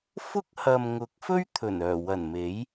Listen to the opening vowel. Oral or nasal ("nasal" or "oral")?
oral